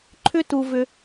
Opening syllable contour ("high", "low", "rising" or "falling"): high